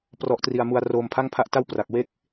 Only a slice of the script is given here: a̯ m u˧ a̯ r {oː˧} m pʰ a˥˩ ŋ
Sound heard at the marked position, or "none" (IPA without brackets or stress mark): oː˧